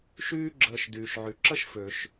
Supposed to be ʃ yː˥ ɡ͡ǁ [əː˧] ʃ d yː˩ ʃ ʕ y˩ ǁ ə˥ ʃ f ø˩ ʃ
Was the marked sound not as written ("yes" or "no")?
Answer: no